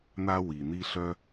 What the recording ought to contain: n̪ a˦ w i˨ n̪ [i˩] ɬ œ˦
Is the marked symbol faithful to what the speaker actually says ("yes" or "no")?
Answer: no